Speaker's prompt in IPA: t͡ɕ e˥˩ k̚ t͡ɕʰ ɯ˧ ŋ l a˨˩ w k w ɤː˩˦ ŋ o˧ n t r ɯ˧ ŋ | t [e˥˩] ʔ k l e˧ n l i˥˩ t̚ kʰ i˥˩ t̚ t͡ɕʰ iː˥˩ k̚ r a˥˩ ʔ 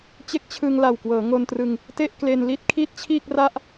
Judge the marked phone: correct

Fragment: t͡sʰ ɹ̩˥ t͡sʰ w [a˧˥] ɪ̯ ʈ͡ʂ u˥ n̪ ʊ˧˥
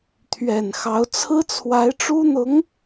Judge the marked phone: correct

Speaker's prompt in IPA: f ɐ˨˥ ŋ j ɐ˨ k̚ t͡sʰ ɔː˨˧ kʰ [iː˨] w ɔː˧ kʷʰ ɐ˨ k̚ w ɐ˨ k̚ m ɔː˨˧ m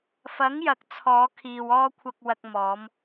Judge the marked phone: correct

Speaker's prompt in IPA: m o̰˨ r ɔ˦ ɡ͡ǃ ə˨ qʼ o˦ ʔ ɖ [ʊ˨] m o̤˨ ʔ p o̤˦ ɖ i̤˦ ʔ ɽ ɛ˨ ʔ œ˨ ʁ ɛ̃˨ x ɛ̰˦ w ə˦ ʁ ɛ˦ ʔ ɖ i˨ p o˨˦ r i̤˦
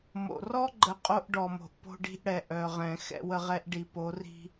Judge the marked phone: incorrect: ɔ˨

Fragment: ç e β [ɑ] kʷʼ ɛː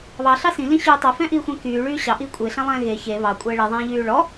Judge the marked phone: correct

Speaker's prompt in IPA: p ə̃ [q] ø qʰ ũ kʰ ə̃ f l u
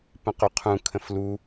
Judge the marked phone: correct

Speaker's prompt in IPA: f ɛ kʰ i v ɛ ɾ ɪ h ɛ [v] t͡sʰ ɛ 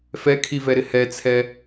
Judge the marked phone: incorrect: none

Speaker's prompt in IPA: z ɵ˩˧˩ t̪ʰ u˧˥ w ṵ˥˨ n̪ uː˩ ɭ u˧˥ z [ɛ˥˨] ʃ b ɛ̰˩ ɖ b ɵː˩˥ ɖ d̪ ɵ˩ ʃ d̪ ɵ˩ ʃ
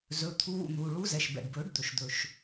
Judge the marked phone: incorrect: ɛ˩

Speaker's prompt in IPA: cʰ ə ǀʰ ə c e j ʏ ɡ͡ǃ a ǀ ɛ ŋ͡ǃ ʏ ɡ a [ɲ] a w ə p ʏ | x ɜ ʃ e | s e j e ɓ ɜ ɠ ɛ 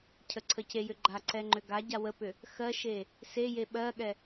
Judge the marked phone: incorrect: ɟ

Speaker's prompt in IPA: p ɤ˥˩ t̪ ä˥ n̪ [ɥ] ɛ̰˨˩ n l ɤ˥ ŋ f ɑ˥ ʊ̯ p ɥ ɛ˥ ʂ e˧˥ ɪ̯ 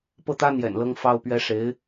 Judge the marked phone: incorrect: j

